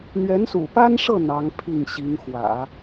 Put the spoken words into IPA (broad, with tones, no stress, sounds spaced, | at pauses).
n̪ ɥ ɛ˧˥ n s ṵ˨˩ p a˥ n ʂ ɤ˥˩ n̪ ɑ˧˥ ŋ pʰ i˥˩ ŋ ɕ i˧˥ ŋ x w ä̰˨˩˦